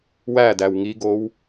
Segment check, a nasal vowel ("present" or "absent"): absent